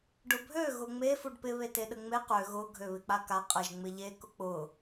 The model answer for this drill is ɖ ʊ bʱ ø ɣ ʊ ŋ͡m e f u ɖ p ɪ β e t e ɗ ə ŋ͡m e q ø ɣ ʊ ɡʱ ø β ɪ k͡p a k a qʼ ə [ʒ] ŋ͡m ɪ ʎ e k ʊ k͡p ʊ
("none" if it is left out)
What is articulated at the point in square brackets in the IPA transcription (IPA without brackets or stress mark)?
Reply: ʒ